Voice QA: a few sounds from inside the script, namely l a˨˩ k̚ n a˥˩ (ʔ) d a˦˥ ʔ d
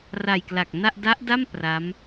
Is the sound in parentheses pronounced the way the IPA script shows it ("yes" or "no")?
yes